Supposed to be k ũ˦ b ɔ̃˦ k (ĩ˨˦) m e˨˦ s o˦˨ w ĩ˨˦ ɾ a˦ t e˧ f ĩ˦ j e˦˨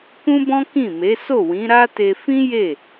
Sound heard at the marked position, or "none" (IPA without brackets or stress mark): ĩ˦˨